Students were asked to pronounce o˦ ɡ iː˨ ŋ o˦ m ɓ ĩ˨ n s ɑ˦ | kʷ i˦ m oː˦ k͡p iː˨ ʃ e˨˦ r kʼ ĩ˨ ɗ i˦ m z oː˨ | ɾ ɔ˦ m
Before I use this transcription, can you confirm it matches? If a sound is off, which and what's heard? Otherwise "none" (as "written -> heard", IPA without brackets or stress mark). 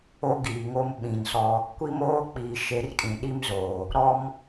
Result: ɑ˦ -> ɔ˦